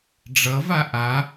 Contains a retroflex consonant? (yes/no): yes